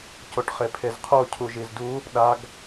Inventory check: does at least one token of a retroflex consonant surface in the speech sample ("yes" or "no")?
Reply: yes